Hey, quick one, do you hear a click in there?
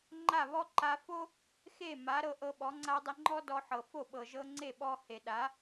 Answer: yes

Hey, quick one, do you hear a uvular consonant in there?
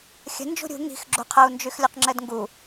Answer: yes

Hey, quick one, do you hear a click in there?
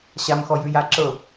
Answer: yes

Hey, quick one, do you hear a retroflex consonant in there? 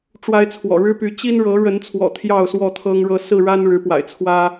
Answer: yes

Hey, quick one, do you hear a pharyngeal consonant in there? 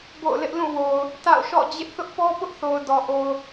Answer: no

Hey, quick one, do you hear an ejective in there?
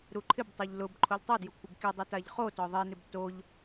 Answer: no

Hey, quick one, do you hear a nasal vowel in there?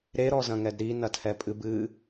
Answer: yes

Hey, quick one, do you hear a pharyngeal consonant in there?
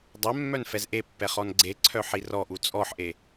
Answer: yes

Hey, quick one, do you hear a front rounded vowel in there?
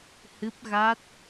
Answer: no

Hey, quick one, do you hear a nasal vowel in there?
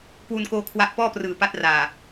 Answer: no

